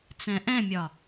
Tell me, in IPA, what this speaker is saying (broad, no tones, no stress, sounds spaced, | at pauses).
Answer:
t͡s ɛ̃ ʔ ɛ̃ mʲ ɒ